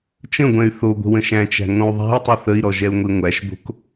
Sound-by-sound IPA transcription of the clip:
t͡ʃə̃ɡʷɛ̃y̯ θo ɡʷə̤wə̃ʃæ̃t͡ʃæ̤ ŋõu̯ðˤæ̤i̯tˤɨ θəi̯ɾɔ ʒɛu̯ŋʷiŋʷæʃbo̤k

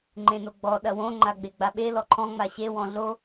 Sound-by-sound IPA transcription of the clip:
ŋ͡ǃẽnoɡ͡bɔ ɗɐwõ ŋ͡ǃaɡ͡beɡ͡baɓe lɔǃʰɔ̃ ŋ͡maɕe wɔ̃ɮo

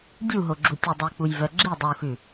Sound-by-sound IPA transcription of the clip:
dʲuɦoɡ͡ǁu tʲudˤik͡pujvœ ɡ͡ǁi dˤuxʉ

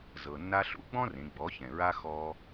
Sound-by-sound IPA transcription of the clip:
zɤ˩nːa˧ɬṵ˧˥ ɡ͡bɔ̃˥rẽ˩˧ ɡ͡bɔ˩˧çɛ̃˩ɹa˧ xɔ˧

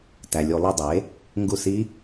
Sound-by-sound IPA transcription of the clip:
tæ˩lʲu˧˩˧ lˠi˧˩ dˤe˩˥ | ŋɡu˧˩s i˦˥

